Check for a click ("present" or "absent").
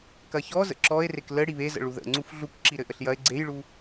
present